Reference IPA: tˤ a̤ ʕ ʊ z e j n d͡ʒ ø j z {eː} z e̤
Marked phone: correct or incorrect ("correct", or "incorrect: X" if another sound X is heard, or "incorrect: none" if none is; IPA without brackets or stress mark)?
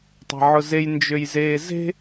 correct